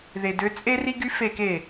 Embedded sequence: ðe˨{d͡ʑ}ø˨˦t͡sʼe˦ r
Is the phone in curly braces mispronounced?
yes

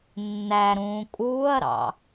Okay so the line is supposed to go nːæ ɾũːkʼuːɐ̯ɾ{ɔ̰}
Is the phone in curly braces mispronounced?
yes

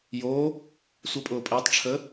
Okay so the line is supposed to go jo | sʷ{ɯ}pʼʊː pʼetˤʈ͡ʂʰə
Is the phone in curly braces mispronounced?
yes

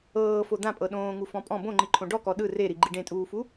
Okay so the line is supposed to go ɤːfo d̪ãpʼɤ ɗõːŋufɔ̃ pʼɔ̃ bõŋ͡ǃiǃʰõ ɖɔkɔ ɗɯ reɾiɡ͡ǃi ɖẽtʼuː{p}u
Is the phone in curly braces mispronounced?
yes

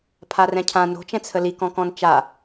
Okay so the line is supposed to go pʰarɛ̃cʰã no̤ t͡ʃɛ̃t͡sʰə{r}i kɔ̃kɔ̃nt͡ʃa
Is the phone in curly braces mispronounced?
yes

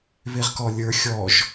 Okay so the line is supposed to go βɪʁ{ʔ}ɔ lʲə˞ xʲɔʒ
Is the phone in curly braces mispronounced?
yes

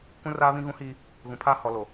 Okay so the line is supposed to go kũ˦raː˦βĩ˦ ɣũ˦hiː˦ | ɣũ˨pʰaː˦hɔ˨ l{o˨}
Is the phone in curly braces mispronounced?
no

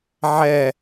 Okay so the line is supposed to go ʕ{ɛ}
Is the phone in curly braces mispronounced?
no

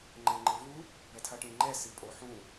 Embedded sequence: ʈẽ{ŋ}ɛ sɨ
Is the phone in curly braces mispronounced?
yes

